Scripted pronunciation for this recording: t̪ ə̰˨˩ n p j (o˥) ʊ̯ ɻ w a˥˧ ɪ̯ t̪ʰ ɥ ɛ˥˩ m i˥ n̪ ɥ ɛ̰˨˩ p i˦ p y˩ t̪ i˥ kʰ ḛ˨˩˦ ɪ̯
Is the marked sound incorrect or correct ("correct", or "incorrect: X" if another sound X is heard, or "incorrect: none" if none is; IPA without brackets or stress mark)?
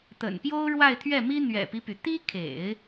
correct